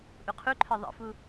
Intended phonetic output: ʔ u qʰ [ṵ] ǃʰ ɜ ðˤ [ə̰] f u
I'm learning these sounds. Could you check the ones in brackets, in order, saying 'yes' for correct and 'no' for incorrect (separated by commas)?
no, yes